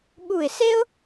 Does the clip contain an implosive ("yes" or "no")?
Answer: yes